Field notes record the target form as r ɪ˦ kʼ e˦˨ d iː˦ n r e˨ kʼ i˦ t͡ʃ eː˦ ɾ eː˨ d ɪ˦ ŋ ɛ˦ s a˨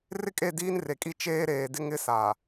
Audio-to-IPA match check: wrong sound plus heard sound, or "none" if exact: ɛ˦ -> ɪ˦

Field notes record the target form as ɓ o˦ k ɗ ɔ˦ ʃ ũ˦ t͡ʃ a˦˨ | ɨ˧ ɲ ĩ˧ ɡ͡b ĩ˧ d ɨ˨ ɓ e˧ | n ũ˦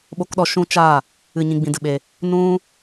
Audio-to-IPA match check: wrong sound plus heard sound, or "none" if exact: none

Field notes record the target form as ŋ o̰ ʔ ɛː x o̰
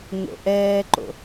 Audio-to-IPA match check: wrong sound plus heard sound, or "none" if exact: x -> ǃ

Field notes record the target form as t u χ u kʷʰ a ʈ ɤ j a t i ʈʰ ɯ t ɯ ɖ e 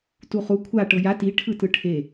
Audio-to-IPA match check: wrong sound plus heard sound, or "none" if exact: ɖ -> ʈʰ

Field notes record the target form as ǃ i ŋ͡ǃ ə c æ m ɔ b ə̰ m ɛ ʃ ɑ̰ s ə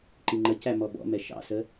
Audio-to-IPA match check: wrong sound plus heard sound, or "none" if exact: ə̰ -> ɔ̰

